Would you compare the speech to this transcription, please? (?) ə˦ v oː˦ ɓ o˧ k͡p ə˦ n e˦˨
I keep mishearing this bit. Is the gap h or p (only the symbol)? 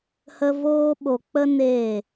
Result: h